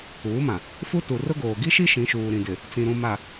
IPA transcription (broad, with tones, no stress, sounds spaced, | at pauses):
uː˨˦ m ã˨ | f u˦ t u˨ r ʊ˦ ɡ oː˨ ɡ i˦ ʃ i˦ ʃ ĩ˨˦ ʃ uː˨ ɾ ĩ˨ d ɪ˨ | t͡s ĩ˨ ɾ ũ˨ m a˨